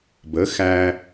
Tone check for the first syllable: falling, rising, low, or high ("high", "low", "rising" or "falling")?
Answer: rising